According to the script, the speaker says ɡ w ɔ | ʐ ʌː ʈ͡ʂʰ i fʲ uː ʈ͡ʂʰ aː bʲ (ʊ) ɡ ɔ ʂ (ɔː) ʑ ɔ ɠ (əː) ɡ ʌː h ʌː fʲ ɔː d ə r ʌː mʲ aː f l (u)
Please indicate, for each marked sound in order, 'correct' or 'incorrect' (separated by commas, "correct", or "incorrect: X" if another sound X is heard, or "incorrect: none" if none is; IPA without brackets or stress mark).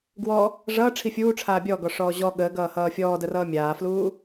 incorrect: ɔ, correct, correct, incorrect: uː